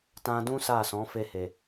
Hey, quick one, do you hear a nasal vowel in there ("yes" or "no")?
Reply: yes